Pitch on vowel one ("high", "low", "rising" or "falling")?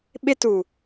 high